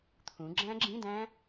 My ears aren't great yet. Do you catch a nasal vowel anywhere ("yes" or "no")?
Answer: yes